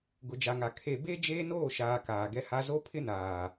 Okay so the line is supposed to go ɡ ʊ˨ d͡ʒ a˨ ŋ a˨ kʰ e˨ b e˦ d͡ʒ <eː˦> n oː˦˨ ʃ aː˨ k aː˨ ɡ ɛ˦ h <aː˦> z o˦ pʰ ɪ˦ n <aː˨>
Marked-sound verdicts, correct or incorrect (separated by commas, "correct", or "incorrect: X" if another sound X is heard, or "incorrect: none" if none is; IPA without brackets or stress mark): correct, incorrect: a˦, correct